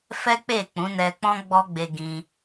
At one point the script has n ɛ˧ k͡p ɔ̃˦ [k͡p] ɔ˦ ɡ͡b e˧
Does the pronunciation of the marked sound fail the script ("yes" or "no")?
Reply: yes